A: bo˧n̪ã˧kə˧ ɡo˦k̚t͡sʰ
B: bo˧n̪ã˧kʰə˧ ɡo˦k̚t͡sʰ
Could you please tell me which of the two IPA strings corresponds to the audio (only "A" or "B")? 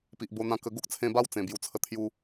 A